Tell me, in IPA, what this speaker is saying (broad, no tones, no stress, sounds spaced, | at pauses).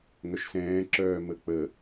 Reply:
ŋ œ ʃ s ɛ̃ː ǁ œː m ə k͡p ə